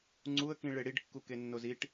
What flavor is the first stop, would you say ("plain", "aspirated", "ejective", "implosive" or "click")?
click